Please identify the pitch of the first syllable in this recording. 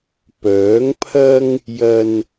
rising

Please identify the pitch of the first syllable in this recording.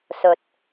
low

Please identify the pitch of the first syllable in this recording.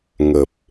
low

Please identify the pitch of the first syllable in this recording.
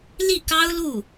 falling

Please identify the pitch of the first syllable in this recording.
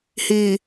low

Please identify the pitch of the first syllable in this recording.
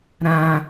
high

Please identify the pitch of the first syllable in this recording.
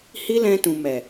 high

